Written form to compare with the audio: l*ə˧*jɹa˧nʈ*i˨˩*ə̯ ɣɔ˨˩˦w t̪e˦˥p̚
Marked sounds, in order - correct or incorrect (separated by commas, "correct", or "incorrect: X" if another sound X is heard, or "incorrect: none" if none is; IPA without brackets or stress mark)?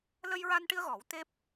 correct, incorrect: i˧